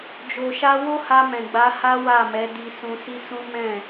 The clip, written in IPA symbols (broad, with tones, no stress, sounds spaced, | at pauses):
d͡ʒ o˨ ʃ a˧ w o˦ h a˧ m ɛ̃˨ ɡ͡b a˨˦ h a˦ w a˦˨ m ɛ˨˦ d i˧ s ũ˧ s i˦ s ũ˦ m ɛ̃˦˨